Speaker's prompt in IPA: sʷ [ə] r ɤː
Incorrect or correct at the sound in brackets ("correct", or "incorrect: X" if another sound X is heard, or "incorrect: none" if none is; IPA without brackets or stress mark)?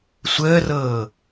incorrect: əː